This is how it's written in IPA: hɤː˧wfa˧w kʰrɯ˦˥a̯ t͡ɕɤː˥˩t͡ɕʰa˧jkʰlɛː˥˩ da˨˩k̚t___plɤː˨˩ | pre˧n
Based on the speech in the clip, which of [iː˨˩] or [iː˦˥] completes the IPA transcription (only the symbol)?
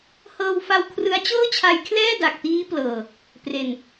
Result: iː˦˥